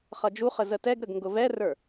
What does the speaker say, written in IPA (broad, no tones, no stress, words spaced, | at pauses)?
χʌd͡ʒuχə zətɛɡɾəɡ ŋɡʊvɛrə˞